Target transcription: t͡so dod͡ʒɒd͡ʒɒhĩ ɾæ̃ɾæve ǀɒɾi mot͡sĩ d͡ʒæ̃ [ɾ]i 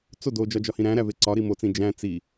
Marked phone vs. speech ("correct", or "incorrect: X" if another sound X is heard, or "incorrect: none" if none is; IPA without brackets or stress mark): incorrect: t͡s